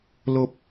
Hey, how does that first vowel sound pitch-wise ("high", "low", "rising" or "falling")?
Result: low